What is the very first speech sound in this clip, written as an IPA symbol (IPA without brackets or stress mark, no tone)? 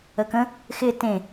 ə